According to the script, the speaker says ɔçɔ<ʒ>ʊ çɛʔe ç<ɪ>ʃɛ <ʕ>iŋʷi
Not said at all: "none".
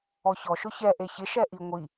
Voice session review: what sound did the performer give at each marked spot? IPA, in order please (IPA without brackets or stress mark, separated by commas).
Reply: ʃ, ɪ, ʔ